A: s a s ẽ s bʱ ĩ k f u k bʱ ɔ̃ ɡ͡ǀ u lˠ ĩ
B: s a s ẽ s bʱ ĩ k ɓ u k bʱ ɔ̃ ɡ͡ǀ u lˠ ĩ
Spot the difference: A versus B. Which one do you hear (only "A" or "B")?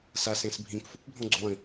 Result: A